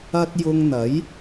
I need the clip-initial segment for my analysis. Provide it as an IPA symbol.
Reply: ɐ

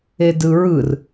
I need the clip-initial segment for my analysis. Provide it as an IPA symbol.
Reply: e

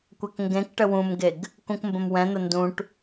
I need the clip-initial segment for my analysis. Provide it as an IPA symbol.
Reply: kʷ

